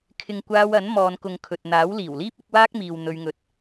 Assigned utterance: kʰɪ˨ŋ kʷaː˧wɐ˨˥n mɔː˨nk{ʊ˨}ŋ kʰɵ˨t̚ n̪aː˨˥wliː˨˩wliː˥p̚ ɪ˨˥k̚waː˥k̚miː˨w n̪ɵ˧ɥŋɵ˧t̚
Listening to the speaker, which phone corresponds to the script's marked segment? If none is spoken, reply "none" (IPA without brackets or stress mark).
ʊ˨